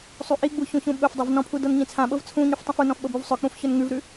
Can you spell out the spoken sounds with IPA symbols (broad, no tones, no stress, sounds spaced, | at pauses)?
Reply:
sˤ u ʔ i ɡ͡b u ç ũ ç ũ ɓ ɵ f dˤ ɵ v n ɔ̃ pʰ u d ɤ n ɲ ĩ t͡sʰ ã ɓ ɤ v t͡sʰ ũ ɲ ʉ f tˤ ĩ f u n ɔ̃ f ɓ ɤ b u v sˤ ɵ k͡p ũ f ç ɵ n ŋ ʉ v ɾ ʉ